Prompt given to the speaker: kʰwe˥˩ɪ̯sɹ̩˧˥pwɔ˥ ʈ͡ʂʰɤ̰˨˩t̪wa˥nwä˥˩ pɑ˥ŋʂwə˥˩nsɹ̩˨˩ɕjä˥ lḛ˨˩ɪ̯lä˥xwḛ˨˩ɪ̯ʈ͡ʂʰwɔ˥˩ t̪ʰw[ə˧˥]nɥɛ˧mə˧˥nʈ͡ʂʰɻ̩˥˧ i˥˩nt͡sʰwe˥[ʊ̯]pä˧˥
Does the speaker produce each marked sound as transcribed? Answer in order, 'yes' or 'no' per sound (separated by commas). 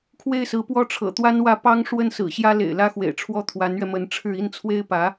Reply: no, no